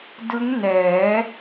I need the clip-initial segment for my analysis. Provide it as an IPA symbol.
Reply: d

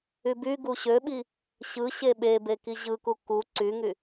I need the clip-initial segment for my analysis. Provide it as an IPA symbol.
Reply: y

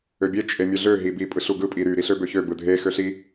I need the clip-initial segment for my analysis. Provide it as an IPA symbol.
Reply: ø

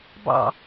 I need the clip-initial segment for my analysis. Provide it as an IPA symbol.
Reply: b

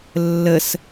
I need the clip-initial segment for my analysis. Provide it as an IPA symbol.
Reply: lː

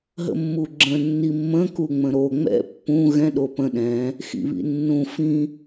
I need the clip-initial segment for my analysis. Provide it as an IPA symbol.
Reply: ɦ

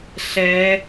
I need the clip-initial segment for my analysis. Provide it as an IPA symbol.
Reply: ɬ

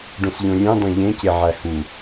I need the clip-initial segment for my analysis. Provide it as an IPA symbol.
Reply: ɖ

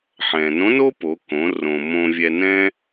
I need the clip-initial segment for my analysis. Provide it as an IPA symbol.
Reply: ħ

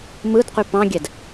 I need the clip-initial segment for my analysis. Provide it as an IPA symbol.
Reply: m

